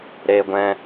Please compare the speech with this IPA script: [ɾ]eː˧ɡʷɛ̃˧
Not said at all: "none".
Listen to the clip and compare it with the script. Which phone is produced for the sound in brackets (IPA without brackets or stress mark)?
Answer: ɾ